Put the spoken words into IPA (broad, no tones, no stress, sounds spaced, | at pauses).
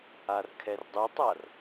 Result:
a r kʰ ɛ r dˤ u tˤ a r